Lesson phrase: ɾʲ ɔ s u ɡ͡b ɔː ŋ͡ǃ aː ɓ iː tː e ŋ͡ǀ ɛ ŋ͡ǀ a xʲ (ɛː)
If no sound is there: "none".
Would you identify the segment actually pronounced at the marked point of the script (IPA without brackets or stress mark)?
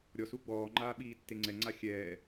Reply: ɛː